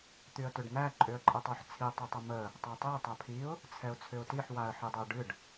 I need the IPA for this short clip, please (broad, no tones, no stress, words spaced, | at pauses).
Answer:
t̪yə̯tʏɖn̪æ ǃʼʏə̯ǃʼətˤoħt͡sʰi tˤətˤəmə | tˤatˤɛ tˤapʰiʊ̯ | t͡sʰɛʊ̯t͡sʰʏʊ̯tiħ waə̯ħidˤʏʊ̯ɖɨɖ